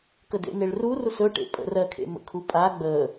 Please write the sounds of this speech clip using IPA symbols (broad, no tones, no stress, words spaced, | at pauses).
kədḛneɭru rusɵʈḛ pʼə̰rɜ kʰḛmə̰kʰupʼa ɡ͡bə